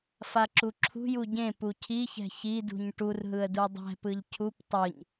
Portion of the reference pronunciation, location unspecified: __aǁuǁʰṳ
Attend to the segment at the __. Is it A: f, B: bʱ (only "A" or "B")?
A